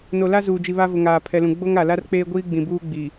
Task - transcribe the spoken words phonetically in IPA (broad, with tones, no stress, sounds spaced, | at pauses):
n o˨ l a˦ z uː˨ d͡ʒ i˨ β a˦ v ʊ˨ ŋ aː˨ pʰ ɛ˨ l ũ˨ ɡ͡b o˦ ŋ a˨ l a˦ r k͡p eː˦ ɡʷ iː˦ ɡ͡b ĩ˨ b uː˦ ɡ͡b i˨